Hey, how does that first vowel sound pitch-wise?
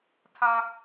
high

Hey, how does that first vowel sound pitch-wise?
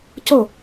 falling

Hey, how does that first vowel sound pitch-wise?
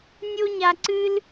high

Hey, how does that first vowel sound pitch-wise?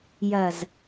low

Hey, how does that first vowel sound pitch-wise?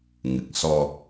low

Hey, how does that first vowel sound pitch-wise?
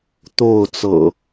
falling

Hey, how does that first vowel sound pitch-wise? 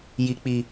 low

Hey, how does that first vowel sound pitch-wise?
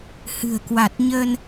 low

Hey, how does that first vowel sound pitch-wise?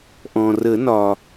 low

